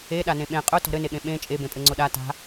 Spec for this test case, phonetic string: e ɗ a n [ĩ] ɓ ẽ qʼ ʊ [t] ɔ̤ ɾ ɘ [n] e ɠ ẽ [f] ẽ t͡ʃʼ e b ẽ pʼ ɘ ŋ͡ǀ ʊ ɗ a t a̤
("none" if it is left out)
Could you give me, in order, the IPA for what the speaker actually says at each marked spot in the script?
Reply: ẽ, t, n, ɓ

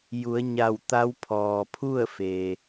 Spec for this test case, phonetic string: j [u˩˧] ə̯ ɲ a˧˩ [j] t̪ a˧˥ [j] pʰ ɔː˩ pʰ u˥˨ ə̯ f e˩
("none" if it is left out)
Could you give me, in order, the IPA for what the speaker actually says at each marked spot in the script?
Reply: u˩˧, w, w

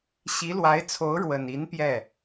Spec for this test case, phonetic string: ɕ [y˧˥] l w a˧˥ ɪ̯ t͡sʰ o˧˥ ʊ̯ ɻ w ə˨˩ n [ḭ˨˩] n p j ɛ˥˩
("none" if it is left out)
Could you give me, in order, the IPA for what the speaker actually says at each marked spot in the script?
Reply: i˧˥, i˧˥

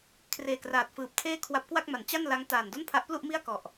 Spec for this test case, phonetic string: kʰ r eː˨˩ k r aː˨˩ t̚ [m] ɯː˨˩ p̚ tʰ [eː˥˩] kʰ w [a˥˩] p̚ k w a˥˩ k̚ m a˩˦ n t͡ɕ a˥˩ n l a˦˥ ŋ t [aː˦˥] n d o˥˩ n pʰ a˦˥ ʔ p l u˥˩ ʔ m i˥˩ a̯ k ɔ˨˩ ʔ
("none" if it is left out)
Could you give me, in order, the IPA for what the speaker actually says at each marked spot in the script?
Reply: f, eː˥˩, a˦˥, aː˨˩

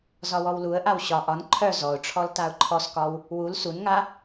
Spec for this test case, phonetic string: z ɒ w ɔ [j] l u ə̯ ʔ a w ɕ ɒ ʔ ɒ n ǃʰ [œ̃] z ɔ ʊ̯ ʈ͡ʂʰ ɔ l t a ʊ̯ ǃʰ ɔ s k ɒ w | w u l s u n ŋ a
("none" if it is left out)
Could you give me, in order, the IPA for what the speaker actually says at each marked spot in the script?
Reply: w, œ

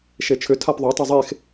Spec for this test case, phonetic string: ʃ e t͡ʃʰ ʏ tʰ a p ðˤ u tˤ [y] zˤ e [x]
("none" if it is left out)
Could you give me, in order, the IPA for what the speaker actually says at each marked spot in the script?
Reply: y, x

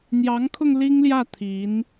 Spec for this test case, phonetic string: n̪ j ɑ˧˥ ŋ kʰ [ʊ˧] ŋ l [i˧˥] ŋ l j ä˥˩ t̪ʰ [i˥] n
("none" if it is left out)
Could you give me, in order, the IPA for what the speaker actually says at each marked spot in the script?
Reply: ʊ˧, i˥, i˧˥

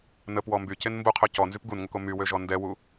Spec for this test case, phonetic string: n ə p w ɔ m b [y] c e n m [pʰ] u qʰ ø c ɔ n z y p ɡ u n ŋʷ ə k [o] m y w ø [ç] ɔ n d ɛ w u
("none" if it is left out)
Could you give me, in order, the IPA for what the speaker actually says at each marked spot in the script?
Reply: y, b, o, ʒ

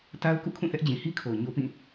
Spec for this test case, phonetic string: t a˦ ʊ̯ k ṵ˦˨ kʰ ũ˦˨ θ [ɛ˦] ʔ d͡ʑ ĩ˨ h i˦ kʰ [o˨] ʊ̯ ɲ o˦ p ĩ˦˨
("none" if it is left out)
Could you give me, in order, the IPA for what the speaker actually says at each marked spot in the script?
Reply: ɛ˦, o˨

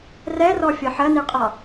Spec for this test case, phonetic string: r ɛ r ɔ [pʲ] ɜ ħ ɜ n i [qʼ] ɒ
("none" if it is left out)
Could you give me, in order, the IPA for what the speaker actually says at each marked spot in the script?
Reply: fʲ, qʼ

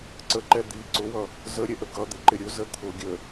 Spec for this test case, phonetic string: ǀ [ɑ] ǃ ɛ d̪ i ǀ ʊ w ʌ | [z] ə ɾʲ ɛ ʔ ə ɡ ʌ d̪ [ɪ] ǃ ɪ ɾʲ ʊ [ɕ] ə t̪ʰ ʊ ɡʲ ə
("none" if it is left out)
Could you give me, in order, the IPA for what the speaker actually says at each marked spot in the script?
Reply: ə, z, ɪ, z

